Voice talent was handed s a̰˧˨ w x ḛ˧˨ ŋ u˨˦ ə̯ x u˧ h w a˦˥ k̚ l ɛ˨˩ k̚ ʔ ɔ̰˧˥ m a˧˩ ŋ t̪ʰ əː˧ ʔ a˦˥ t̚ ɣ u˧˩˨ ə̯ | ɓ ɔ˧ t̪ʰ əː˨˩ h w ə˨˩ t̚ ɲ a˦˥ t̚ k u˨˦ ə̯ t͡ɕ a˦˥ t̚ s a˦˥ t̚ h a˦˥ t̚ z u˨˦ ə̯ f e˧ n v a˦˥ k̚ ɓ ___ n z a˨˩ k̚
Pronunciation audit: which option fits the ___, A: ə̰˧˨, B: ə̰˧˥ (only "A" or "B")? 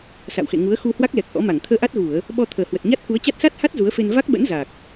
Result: B